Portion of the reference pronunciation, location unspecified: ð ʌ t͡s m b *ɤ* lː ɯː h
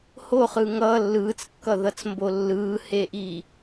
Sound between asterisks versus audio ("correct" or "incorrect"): incorrect